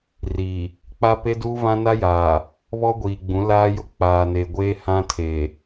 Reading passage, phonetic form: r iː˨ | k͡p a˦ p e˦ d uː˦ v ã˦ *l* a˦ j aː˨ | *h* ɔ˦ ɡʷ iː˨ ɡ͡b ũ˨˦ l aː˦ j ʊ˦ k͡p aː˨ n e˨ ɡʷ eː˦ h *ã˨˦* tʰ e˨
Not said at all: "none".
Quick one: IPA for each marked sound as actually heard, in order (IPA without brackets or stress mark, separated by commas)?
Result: n, β, ã˦